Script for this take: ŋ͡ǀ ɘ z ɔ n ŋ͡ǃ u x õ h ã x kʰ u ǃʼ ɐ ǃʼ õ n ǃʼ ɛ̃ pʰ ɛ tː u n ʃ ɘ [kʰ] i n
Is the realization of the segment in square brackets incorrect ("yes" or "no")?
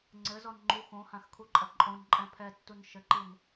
yes